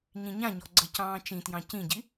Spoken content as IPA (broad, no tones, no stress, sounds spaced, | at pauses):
ɲ ĩ ɲ ã ɲ ɔ ɡ͡ǀ ə c ɑ̃ː t͡ʃ ĩ t j ɑ̃ c ĩ ɟ i